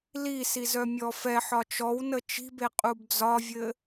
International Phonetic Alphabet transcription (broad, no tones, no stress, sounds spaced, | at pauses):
l i s i z œ mʲ ɔ f ɛ ħ ɒ t͡ʃ ɔ w n ə t͡ʃ i̤ b e qʼ u b d͡z ɒ vʲ ɘ